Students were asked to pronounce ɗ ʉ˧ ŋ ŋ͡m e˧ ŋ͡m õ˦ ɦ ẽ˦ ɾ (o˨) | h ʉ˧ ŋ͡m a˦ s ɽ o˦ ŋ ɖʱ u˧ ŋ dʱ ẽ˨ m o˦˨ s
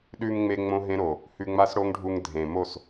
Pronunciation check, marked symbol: correct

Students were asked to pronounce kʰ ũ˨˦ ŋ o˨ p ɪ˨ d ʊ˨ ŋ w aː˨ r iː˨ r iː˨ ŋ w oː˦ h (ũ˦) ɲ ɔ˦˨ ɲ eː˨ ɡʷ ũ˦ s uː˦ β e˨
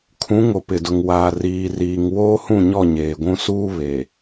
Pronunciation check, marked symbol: incorrect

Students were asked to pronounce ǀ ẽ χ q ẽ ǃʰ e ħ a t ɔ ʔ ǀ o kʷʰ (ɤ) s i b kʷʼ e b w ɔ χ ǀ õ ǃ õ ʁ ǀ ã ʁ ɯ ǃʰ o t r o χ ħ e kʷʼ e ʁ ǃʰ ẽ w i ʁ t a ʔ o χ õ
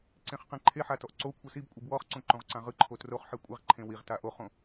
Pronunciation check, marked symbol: correct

